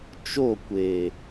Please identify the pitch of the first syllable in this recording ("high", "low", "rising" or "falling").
falling